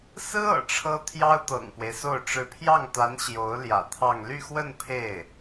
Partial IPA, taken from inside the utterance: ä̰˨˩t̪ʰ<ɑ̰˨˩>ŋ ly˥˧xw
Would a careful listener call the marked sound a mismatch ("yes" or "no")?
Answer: yes